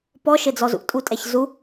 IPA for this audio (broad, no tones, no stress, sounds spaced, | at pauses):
p ɔ ʃ ɘ d͡z ɔ z ṵ tʼ u tʼ ɛ ç z u